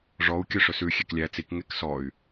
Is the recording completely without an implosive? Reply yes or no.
yes